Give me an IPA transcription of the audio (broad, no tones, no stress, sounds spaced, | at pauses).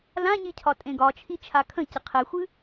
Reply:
l ã ɲ i cʰ ɒ tʼ ẽ ɡ ɒ t͡ʃʰ i t͡ʃʰ a kʰ ə̃ c ə qʰ ɛ xʷ ɨ